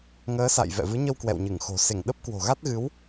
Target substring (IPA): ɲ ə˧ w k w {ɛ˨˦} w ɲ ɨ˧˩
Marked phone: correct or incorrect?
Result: incorrect